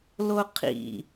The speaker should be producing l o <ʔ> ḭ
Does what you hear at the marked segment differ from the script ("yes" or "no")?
yes